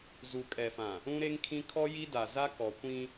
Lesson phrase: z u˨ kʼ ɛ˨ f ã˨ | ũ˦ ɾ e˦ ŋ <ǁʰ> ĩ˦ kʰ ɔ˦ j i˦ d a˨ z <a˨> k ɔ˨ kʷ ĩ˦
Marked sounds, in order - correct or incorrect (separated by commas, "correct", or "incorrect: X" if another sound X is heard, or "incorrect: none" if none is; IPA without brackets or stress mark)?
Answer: incorrect: kʰ, incorrect: a˦